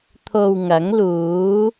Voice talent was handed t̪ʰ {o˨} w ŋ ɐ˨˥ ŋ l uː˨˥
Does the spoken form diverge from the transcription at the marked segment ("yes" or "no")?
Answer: no